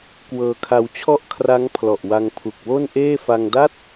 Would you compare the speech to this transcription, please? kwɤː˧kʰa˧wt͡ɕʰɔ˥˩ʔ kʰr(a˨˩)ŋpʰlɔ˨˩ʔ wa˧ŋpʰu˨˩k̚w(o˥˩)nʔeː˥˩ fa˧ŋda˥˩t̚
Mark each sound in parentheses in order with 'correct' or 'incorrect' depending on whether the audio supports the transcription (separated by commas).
incorrect, correct